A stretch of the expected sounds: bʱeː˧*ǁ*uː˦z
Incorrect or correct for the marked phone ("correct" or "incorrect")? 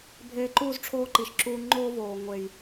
incorrect